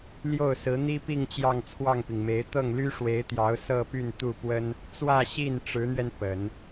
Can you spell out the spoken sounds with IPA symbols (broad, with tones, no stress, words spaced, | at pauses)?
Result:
ljo˥˩ʊ̯sɹ̩˧˥n̪i˥pi˥˧ŋ t͡ɕjɑ˥˧ŋt͡sʰwɑ˥˩ŋpi˩ŋme˧˥ɪ̯ t̪ɤ˥˩ŋly˥ʂwe˧˥ɪ̯t̪jɑ˧˥ʊ̯ sɤ˥˧py˥˧n t̪u˥˩pwə˥n | t͡swä˥˧ɕi˥˩n ʈ͡ʂɻ̩˧˥n̪ɥɛ˧n pə˨˩˦n